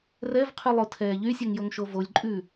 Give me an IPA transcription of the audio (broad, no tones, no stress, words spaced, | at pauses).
rɛv qʰylˠotʰɛːʎy sʲɛŋjoŋʃovolʲ ǃʼʉ